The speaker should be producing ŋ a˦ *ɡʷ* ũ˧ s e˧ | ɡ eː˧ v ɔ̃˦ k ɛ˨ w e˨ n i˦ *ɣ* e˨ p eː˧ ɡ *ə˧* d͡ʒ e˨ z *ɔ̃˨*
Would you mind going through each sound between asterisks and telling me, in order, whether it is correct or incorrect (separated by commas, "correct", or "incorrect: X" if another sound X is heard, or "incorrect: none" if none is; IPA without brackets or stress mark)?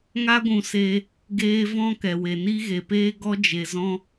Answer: correct, correct, incorrect: ɔ˧, incorrect: ɔ̃˦